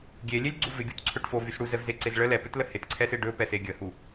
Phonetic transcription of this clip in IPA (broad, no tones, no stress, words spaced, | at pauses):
ɡʲelʲelʲɡ͡ǀu vɪɡʲutǀʰɵʈ fovys ɽuzɛvzeǀez ɭə lɛpɵtlə hɪtǀʰɛsɪ ɖɵpɛse ɡʲəhu